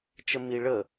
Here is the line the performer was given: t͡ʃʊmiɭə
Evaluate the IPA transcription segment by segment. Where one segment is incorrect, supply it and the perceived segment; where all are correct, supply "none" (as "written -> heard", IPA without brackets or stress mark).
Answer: ʊ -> ə